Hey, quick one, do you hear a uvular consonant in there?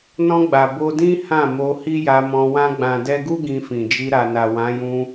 no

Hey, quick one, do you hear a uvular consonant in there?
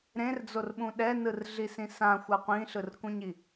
yes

